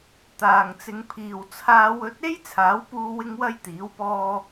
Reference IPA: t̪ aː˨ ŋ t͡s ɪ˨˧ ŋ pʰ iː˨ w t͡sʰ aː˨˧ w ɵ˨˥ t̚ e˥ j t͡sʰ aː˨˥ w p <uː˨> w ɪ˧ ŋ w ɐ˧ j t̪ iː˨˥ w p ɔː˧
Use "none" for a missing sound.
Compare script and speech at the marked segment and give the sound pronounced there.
uː˧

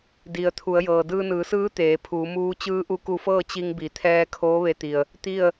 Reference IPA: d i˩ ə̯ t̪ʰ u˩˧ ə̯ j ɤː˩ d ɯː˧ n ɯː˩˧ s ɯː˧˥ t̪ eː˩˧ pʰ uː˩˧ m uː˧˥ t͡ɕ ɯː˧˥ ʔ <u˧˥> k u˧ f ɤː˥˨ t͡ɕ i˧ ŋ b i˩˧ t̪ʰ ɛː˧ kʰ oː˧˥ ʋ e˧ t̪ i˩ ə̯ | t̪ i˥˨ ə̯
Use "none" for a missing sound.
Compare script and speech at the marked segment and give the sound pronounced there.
u˧˥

